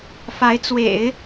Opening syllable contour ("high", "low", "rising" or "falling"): rising